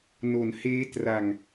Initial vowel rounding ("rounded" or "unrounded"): rounded